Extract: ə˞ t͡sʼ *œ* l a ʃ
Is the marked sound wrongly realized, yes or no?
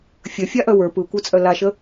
no